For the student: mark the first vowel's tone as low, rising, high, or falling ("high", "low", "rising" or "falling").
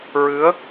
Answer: rising